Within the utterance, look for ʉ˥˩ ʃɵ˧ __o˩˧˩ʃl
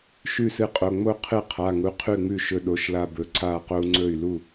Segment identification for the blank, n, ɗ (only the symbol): ɗ